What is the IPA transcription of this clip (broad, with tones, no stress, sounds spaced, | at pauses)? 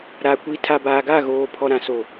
ɾ a˨ kʷ i˨ tʰ a˨ b aː˨ ɡ a˦˨ ɣ oː˨ pʰ ɔ˨ ɾ ã˨ s o˨